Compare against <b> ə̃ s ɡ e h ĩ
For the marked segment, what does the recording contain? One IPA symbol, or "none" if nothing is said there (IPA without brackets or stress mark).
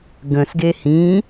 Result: ɡ